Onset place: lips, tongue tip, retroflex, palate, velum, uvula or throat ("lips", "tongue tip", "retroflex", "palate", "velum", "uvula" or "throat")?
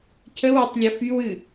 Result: palate